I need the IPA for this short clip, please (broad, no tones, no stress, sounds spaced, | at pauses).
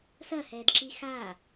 s ɐ h ɛː d ǁ i x aː